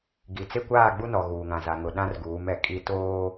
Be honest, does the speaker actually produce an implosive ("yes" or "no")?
yes